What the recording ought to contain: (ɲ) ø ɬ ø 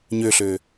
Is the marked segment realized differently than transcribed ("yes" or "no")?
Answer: no